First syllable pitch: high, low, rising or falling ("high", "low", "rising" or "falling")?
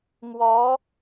rising